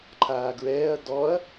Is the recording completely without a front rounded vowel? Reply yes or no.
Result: yes